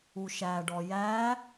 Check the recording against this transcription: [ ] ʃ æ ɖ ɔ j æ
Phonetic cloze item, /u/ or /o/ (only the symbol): u